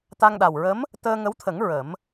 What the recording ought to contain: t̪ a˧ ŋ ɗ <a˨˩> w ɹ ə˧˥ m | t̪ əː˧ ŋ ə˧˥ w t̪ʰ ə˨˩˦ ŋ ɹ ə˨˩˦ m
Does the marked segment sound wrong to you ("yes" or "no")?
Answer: no